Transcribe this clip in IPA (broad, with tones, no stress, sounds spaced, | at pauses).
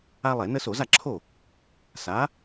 a˦ lˠ ɛ˧˩˧ n ə˦ s o˧˩˧ z a˥˩ ǁʰ o˥˩ | s a˨˥